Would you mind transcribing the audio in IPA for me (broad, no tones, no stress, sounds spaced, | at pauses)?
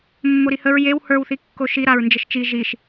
mː o ɾ i h ə ɹ j e w h ə˞ w θ i kː o ʃ i ɾ a ɹ n d͡ʒ ə ʃ t͡ʃ i ʒ i ʃ